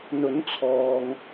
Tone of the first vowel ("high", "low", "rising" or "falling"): rising